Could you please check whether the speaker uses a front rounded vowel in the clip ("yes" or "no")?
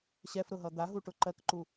no